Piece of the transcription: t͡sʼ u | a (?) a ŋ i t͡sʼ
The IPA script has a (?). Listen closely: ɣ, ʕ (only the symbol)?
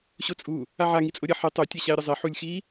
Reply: ʕ